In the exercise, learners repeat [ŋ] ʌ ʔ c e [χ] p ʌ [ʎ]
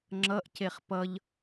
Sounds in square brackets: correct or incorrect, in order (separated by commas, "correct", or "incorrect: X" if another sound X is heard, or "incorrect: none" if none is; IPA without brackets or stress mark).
incorrect: ŋ͡ǁ, correct, correct